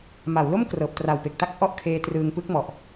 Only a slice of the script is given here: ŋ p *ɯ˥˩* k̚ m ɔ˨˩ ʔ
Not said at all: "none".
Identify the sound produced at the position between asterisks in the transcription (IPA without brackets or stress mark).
ɯ˦˥